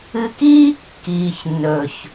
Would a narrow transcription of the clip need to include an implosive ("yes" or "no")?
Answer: no